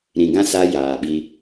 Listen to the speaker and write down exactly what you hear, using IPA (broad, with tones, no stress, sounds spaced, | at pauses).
ɾ ĩ˨ ɡ ã˦ s a˦ j aː˨ ɓ i˦